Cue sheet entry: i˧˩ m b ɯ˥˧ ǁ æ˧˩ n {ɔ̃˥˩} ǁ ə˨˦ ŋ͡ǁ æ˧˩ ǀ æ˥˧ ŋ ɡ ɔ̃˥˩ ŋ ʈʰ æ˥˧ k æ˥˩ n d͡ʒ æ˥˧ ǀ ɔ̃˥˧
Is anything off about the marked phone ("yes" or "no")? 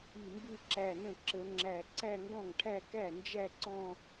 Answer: yes